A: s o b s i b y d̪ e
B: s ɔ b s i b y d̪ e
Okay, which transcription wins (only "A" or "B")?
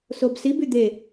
A